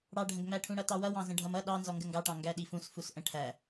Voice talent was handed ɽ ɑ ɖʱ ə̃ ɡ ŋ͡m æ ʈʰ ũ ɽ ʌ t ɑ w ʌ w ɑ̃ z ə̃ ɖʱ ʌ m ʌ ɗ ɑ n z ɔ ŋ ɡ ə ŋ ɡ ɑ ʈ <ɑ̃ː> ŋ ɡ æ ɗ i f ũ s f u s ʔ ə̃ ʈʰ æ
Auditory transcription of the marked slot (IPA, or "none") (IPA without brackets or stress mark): ɑ̃